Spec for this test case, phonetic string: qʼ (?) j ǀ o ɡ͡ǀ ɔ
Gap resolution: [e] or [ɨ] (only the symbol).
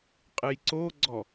ɨ